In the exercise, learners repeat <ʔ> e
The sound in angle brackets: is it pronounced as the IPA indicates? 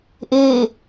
yes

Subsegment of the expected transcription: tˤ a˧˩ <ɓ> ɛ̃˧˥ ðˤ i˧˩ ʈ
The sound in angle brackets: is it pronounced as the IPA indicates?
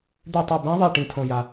no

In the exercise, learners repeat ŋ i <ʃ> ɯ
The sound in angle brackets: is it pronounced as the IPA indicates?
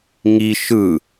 yes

